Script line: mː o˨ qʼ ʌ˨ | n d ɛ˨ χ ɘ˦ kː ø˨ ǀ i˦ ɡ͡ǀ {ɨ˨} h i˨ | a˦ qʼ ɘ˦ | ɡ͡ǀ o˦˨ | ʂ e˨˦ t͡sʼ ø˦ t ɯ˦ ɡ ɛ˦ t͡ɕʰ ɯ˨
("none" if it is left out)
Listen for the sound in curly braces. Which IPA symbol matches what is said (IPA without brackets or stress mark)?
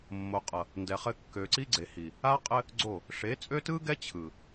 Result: e˨